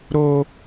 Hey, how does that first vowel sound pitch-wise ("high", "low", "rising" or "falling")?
high